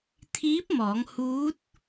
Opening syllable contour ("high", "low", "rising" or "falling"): rising